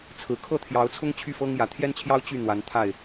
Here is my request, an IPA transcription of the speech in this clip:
t͡sʰ ɹ̩˨˩ kʰ ɤ˥˨ t̪ʰ j ɑ˨˦ ʊ̯ t͡sʰ ʊ˦ ŋ t͡ɕʰ y˥˨ f ɤ˦ ŋ j ä˨˦ t̪ʰ j ɛ˦ n t͡ɕʰ j ɑ˦ ʊ̯ t͡ɕ y˥˨ n̪ w a˨˦ n t̪ʰ a˥˨ ɪ̯

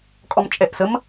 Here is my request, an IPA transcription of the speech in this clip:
kʼ ɔ m t͡ʃʼ ɛ ʔ s ə m

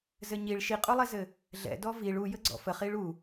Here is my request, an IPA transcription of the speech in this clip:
z ɘ ɲ i ɭ ʃ i qʼ u lˠ ɛ z ɘ | ɮ ɛ̰ d ɔ v i ɭ u j ə ɡ͡ǀ ɔ̰ f ə χ i ɭ u

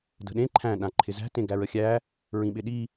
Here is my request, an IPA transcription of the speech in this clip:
d ə̤ ɗ ẽ ǃʰ æ̃ ɗ ã ǃʰ ɪ z æ̤ t ẽ ɡ æ ɹ ə xʲ æ | ɹ ĩ ɓ ɪ ɗ i

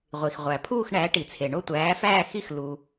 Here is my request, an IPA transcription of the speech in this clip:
ʁʷ i˩ x ʁʷ æ˩ pʰ uː˥˨ x ɳ æ˩˥ ʈ i˩ t͡sʰ e˩ ɳ o˥˨ tʷ æː˩˥ f æː˥˨ x i˥˨ x l u˩

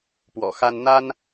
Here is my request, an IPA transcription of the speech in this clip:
p w ɔ̰˨˩ x a˥ n n̪ a˥ n

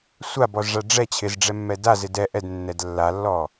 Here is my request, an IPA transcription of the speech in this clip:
sʷ a b ɔ z ʐ a ɖ͡ʐ ɛ t͡ɕʰ ɪ z ɖ͡ʐ ɛ mː ɛ d a z ɪ d ɛ ʔ ɛ d nː ɛ d lː a lː ɔ

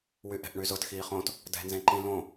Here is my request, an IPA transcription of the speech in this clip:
w y ʔ ɛ̤ ʔ ɳ y z ʊ t x iː χ õ t | d ɛ̤ n z ẽ ǃ ĩ l õ

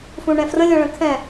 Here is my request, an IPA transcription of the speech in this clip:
f ũ ɳ ɛ̃ f r ə̃ lʲ ɔ̃ ɭ ə̃ kʰ ɛ̃

